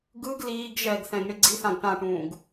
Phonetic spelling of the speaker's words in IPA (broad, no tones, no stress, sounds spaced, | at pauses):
ɡ ɯ ɡ l iː ɡ ʒ ɛ ɡ θ ɛ̃ ɡ ɳ i ɡ͡ǀ i θ ã ɡ ʈ ã ʈ ũː ɡ